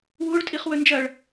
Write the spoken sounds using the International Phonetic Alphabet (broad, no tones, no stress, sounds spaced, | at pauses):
w u ɭ tʼ i χ w ɵ n d͡ʒ ɐ ɭ